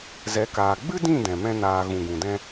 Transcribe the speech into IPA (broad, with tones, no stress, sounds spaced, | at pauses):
z ɛ˨˦ k aː˨ ɡ͡b ɨ˦ d ĩ˦˨ d ɛ̃˨ m ɛ̃˦ n aː˧ ɣ ũ˨ ɡ ũ˨ d ɛ̃˦